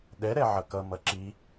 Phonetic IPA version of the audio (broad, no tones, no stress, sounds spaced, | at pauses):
ɗ ɛ ɾ ɛ ʕ ʌ k ʌ m ʌ ǁ i